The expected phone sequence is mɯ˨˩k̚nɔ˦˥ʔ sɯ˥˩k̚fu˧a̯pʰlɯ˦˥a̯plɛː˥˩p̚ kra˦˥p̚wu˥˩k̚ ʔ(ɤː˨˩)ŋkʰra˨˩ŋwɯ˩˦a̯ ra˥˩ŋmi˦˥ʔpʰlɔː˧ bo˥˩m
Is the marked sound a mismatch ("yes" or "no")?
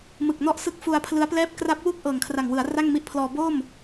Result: no